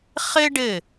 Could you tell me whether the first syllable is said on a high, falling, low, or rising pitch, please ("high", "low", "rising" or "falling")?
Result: high